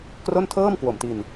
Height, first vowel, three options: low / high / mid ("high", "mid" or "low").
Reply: mid